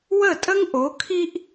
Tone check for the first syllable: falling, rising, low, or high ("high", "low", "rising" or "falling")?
falling